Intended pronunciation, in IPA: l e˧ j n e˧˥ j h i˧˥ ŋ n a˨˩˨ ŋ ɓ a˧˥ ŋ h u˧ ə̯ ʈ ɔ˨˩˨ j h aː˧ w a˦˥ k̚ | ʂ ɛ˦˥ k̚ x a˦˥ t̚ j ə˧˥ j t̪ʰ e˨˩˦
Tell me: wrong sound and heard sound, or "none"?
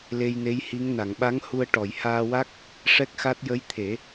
none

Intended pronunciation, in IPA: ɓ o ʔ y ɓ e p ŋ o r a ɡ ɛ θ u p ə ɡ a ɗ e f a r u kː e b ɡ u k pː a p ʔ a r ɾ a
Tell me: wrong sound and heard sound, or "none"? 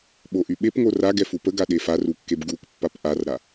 θ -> f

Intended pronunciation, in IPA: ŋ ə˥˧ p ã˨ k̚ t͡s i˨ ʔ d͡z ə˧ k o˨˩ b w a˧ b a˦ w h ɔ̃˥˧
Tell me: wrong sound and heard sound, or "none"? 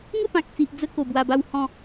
none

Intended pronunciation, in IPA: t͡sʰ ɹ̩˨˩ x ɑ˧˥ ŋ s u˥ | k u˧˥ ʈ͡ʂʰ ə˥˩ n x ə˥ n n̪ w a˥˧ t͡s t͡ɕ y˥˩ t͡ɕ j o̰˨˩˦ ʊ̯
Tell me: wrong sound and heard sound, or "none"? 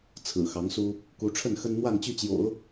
t͡s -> n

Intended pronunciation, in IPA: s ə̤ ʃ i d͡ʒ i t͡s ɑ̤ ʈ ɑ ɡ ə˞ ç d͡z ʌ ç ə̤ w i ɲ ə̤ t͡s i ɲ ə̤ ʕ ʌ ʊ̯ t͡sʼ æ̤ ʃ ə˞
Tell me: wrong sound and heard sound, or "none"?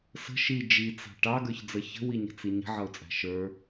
none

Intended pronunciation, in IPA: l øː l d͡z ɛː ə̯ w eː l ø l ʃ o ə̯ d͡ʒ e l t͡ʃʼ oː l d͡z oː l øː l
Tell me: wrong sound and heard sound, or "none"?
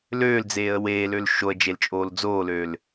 ɛː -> eː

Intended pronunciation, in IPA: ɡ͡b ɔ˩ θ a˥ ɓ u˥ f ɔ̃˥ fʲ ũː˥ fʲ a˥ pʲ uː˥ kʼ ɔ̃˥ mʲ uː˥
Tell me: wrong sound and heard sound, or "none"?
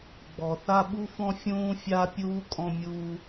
none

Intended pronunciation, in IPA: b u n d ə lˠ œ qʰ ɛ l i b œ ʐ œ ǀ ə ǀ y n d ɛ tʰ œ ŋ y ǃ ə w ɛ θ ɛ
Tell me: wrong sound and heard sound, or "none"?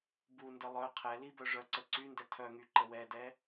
θ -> d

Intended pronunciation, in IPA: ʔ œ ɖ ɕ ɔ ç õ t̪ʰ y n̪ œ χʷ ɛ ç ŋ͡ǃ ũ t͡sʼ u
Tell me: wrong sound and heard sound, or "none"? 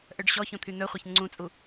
ŋ͡ǃ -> ŋ͡ǀ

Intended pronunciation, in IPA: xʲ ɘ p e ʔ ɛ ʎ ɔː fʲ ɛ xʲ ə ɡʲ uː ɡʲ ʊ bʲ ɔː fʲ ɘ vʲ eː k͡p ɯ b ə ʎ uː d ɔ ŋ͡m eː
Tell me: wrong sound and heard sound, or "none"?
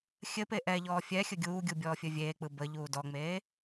ʊ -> u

